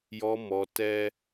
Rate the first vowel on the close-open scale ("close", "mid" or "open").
mid